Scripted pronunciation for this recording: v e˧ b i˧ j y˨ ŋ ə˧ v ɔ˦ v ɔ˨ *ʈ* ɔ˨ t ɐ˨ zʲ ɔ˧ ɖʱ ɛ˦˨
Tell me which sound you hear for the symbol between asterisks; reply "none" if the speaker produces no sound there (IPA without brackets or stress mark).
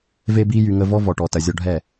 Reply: ʈ